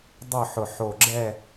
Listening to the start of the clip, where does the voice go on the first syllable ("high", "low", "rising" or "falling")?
falling